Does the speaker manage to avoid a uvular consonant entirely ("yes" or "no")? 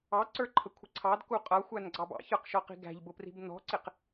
no